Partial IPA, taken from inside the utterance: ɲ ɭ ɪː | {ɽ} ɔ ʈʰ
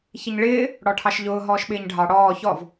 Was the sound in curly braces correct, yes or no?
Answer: yes